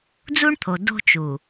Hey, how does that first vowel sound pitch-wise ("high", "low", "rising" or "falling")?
high